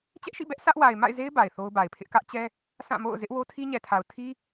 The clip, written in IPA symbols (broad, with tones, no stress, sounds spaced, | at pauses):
t͡ɕ ɛ˦ ʔ ʃ ḭ˦˨ b ɛ˦ ʔ s ä˦ ʔ w a˨ ɪ̯ m a̰˦˨ ɪ̯ z e˦ ɪ̯ b a˨ ɪ̯ θ o˦ ʊ̯ b a˨ ɪ̯ pʰ ɪ˦ ʔ k ä˦ ʔ t͡ɕ ɛ˦ | sʰ ã˦˨ m o̰˦˨ ʊ̯ z ɪ˦ ʔ w o˦ tʰ i˦ ɲ ɛ˨ tʰ a˨ ʊ̯ tʰ i˦